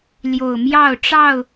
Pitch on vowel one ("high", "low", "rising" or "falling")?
low